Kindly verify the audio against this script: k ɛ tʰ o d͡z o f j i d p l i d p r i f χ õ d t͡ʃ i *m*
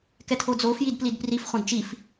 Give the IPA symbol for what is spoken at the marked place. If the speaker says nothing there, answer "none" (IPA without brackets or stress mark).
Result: f